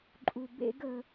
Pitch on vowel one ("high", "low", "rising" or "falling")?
low